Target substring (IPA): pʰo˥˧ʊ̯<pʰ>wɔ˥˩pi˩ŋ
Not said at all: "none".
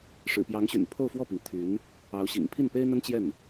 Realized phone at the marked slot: f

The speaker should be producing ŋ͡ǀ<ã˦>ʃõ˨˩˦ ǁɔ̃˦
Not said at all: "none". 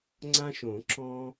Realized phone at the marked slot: ã˦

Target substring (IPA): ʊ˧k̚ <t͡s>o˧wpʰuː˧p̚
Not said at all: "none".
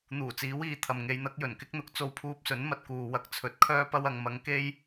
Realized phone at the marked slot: t͡s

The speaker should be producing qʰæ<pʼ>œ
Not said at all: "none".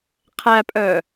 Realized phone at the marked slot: pʼ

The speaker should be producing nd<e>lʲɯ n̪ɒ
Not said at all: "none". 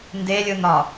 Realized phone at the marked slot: e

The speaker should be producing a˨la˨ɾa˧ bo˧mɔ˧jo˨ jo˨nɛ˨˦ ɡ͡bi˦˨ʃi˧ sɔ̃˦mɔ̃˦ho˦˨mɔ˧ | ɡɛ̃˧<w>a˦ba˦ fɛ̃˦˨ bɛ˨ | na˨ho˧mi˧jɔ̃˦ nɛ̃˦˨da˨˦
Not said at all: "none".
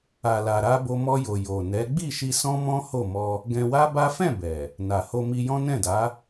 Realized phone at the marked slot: w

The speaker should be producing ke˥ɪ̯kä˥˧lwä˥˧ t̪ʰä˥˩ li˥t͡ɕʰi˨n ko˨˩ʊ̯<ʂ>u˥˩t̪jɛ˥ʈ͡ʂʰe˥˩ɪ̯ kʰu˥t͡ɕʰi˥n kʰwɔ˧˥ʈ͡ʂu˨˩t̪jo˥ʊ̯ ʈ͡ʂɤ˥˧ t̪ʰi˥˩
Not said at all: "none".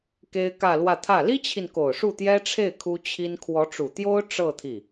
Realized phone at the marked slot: ʂ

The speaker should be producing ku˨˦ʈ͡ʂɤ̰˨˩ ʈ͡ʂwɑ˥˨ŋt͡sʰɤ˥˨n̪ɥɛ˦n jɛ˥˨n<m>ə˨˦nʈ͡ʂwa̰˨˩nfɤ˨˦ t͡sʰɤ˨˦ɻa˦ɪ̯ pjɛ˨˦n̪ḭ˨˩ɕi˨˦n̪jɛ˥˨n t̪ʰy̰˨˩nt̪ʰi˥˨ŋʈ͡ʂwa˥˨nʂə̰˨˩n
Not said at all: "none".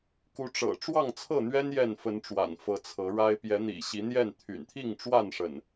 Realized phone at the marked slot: f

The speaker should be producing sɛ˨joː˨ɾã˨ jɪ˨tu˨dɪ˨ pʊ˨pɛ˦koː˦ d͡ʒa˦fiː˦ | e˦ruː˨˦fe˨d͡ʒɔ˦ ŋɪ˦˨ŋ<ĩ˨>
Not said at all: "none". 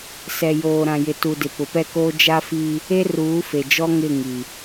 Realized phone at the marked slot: i˨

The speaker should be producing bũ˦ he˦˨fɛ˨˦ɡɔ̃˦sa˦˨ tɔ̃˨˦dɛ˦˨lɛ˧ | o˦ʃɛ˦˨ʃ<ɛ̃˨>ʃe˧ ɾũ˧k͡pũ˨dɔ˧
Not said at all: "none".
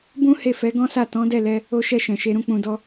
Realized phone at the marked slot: ɛ̃˨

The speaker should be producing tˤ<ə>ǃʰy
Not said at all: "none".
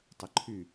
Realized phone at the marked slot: ə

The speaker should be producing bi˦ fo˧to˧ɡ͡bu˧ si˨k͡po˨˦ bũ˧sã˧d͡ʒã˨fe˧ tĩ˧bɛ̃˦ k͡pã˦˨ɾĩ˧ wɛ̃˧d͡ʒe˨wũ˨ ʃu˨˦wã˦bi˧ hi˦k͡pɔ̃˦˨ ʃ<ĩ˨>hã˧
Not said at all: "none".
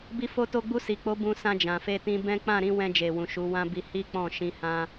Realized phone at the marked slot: ĩ˧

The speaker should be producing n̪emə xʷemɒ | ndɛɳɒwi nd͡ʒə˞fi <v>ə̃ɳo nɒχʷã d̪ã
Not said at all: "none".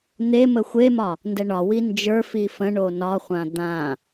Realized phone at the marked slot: f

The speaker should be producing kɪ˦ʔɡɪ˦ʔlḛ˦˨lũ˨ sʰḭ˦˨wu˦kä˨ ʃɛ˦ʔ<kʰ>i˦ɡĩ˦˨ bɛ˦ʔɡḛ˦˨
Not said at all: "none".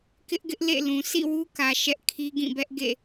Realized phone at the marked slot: kʰ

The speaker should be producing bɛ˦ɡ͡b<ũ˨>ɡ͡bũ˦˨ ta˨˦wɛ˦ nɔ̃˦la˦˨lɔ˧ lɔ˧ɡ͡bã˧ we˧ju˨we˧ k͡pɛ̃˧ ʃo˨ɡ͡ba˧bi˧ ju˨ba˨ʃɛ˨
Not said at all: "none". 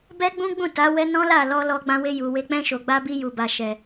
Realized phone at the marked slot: ũ˦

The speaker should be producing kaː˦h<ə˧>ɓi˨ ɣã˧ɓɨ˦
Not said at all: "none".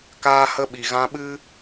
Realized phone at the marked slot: ə˦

